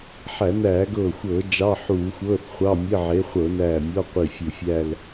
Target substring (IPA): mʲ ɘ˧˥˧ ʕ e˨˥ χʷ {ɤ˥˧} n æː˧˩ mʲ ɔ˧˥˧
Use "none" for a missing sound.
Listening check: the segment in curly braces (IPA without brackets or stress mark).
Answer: ɤ˧˩˧